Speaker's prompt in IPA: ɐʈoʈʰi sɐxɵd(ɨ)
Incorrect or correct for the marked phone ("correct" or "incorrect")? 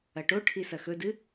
correct